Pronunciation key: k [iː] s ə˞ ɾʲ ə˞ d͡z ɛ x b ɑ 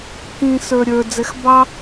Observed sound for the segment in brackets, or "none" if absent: ĩː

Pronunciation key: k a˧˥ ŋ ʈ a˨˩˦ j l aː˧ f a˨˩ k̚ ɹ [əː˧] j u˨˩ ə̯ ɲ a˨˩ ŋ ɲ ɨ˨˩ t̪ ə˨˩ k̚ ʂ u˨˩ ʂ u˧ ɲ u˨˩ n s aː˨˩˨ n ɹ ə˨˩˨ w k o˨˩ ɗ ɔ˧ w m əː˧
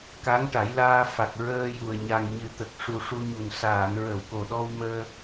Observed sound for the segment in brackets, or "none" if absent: əː˧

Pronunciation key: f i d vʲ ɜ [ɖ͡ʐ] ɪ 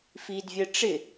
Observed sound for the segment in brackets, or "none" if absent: ʈ͡ʂ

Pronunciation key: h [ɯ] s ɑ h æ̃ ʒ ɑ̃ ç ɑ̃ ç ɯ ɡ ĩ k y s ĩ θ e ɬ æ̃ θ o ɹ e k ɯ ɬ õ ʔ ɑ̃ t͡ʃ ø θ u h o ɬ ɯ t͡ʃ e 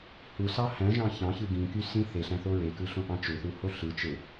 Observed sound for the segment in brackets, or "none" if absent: u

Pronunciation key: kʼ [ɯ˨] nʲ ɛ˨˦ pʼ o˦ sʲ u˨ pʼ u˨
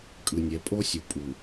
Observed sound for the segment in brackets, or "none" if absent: ɯ˨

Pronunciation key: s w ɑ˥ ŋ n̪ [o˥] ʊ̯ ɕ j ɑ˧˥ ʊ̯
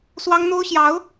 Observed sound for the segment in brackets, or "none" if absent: o˥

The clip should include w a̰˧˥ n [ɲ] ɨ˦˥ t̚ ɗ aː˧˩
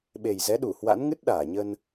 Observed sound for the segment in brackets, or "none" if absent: ŋ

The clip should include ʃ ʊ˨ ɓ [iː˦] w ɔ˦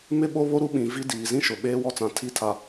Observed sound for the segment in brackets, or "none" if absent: eː˦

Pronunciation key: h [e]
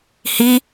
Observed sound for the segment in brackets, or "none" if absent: i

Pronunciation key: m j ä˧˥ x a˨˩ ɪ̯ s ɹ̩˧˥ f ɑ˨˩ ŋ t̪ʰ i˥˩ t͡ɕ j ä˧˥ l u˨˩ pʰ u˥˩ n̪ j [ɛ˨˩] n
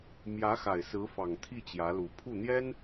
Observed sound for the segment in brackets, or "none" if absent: ɛ˥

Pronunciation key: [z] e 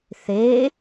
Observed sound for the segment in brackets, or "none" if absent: θ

